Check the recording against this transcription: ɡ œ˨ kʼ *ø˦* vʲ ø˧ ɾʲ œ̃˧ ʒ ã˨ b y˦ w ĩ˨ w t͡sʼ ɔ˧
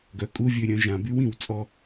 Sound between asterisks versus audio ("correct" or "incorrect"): incorrect